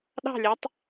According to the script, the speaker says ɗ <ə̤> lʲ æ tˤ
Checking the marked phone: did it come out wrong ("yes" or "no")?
yes